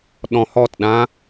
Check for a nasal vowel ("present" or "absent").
present